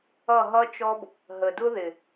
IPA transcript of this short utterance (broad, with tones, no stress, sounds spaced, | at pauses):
ʌ˦˨ ɦ ʌ˦ t͡ʃ ɔ˦ b | ɦ ə˨ d ʊ˦ ð ɪ˨